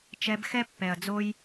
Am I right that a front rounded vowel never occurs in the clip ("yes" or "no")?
yes